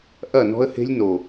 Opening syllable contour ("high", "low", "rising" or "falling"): falling